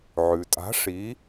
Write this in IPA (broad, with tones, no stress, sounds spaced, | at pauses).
ʕ ʉ˩ tʼ a̤˨˦ ʂ i˨˦